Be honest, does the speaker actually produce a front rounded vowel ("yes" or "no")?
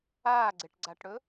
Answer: no